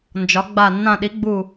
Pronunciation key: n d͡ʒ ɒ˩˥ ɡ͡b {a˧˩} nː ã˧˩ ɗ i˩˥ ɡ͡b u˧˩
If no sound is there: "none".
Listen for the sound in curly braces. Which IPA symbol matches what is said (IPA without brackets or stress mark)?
a˧˩